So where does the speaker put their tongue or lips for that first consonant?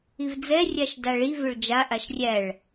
lips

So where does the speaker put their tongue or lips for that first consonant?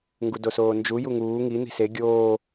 velum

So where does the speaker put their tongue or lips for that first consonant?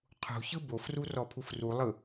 uvula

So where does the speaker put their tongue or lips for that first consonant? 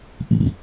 throat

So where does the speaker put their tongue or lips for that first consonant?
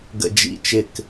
velum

